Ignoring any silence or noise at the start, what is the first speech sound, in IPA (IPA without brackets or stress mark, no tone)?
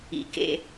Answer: ḭ